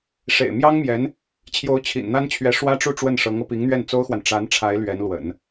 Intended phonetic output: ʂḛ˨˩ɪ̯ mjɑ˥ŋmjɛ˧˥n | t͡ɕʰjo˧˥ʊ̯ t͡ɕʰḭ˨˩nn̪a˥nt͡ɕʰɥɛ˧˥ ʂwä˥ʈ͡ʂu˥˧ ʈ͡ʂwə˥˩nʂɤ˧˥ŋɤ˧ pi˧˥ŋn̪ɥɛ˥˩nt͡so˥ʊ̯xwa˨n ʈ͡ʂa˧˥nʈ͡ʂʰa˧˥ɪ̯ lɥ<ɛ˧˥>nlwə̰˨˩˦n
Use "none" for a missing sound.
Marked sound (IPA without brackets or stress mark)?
ɛ˧˥